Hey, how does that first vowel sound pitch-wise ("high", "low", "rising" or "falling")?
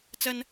high